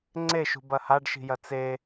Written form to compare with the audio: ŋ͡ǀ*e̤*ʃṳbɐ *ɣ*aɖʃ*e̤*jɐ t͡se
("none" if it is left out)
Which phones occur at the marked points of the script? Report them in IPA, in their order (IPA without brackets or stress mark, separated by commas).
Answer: e, h, i̤